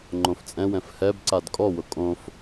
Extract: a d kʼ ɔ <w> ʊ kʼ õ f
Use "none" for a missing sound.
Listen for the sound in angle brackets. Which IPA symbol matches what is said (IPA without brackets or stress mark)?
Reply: w